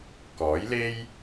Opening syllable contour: rising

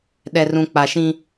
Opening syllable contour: low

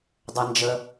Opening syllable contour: low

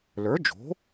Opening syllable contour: rising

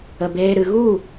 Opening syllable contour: low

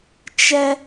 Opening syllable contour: high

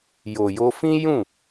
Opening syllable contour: low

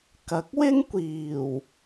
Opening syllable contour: rising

